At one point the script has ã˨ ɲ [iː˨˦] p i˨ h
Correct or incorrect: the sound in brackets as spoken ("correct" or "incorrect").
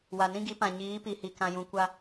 correct